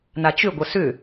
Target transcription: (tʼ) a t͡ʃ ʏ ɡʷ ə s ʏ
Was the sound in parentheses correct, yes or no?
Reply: no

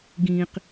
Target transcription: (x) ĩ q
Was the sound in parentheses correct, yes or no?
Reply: no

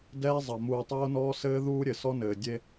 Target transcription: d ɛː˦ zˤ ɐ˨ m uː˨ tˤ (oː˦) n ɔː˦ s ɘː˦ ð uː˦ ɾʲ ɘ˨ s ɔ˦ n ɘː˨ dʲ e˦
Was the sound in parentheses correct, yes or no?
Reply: yes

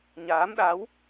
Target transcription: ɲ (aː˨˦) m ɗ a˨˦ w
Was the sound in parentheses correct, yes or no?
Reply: yes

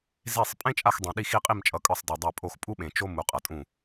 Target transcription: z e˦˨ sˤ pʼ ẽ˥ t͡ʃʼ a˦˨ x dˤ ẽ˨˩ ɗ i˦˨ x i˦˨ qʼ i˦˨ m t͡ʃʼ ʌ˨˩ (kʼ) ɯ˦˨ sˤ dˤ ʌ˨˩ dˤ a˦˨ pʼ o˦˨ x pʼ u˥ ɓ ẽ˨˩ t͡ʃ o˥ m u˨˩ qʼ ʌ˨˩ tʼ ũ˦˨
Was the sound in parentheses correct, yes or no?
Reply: yes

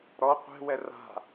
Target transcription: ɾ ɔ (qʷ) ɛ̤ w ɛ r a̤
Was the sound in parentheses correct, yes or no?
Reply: yes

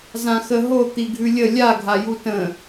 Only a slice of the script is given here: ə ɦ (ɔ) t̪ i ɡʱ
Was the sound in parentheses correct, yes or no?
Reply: no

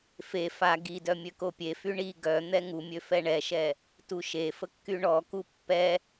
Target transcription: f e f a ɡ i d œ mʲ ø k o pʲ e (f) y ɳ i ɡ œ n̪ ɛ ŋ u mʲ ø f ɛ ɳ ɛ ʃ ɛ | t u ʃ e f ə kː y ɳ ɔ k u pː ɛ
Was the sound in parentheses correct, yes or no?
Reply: yes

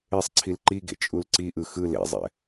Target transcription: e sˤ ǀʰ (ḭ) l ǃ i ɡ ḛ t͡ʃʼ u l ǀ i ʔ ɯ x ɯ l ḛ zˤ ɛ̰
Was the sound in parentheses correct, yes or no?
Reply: no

